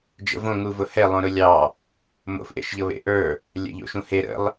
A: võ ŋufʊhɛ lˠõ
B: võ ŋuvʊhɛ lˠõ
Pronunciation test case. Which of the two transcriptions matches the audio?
B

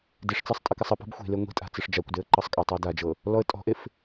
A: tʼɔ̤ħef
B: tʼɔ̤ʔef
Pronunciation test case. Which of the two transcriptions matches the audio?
B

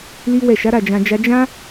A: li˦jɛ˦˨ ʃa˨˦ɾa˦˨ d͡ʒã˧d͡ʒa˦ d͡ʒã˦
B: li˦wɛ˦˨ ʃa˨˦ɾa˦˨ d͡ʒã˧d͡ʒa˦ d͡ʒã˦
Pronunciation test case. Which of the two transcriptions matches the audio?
B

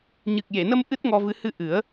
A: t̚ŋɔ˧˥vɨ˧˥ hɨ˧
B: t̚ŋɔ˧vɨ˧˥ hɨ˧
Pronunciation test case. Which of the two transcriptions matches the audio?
B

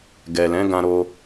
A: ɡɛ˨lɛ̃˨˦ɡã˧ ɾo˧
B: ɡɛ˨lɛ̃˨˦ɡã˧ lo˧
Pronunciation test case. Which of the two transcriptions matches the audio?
A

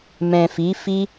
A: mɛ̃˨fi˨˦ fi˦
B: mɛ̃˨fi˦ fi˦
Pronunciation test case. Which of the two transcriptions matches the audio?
A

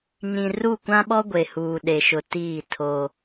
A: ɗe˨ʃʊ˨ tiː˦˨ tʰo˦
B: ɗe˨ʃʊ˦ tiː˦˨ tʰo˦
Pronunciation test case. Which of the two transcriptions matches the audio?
A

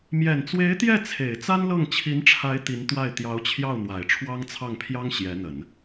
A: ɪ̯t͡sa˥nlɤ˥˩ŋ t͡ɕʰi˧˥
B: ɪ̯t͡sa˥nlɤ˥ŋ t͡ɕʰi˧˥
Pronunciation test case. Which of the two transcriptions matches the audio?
A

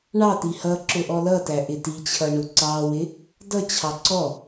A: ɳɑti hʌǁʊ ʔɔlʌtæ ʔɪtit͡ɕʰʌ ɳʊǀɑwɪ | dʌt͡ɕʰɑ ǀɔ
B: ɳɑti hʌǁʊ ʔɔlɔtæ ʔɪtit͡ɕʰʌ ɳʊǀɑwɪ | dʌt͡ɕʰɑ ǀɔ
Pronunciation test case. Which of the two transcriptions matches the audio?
A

